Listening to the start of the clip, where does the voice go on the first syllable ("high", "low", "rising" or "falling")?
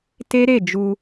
high